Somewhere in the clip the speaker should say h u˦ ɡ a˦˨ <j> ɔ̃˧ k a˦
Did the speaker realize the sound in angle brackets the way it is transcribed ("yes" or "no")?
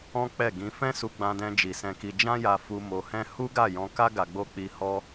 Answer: yes